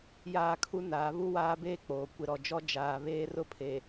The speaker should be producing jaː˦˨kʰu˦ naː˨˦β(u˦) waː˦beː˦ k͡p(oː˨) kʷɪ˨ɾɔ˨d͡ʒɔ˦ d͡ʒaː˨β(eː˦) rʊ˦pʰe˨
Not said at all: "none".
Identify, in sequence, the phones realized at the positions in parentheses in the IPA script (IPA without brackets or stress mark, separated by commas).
u˦, oː˨, eː˦